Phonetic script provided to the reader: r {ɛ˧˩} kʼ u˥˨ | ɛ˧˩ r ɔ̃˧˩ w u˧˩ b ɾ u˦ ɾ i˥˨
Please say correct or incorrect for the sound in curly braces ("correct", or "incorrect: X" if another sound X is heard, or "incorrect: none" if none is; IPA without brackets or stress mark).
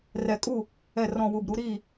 correct